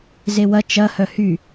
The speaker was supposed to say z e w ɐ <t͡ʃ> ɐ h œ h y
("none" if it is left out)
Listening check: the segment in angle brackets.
t͡ʃ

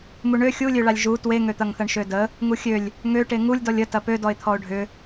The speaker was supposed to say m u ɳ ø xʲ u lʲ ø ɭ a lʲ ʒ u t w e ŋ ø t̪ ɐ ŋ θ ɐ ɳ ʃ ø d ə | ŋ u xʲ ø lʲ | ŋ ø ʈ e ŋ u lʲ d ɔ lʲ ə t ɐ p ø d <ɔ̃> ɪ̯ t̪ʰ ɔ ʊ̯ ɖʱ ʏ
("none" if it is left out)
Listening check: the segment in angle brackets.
ɔ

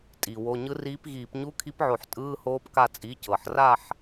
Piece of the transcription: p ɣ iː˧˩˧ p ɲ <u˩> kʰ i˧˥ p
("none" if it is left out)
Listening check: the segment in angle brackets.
u˧˥˧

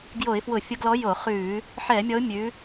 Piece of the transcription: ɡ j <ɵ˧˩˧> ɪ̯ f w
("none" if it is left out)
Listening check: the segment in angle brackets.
o˧˩˧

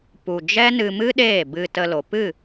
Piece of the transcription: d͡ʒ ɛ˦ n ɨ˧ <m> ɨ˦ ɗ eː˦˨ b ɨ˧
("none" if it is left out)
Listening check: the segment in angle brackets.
m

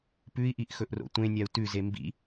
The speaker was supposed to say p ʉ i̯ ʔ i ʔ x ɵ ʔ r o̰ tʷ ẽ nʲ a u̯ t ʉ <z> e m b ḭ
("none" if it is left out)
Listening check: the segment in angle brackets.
z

